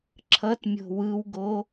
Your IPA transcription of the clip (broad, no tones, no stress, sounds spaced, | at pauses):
ǁʰ ʌ t mʲ o̤ w ɯ w ɡ o